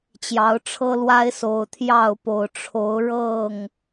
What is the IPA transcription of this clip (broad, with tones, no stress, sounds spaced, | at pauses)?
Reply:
t͡ɕ j ɑ˨˦ ʊ̯ ʈ͡ʂʰ ɤ˦ l w a˦ ɪ̯ s o˨˩ ʊ̯ t̪ʰ j ɑ˥˨ ʊ̯ p o˨˩ ʊ̯ ʈ͡ʂʰ o˨˦ ʊ̯ ɻ ɤ˥˨ ŋ